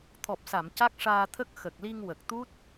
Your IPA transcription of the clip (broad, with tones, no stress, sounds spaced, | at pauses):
t̪ʰ ɔ˨˩ p̚ s a˨˩˨ m c a˦˥ k̚ ʂ aː˧ t̪ʰ ə˦˥ k̚ x ə˨˩ k̚ l i˧ ŋ w ə˨˩ k̚ t̪ u˦˥ t̚